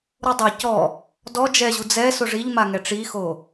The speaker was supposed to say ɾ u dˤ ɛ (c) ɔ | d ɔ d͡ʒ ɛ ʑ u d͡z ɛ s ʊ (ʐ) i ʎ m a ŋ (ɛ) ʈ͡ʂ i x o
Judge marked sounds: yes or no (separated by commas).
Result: yes, yes, yes